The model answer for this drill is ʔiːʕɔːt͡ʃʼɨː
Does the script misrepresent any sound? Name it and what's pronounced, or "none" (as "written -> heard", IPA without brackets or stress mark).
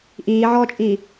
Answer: ɨː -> iː